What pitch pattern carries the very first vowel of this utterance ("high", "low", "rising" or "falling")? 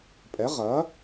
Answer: rising